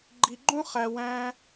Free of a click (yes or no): no